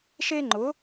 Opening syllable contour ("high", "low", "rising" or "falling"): high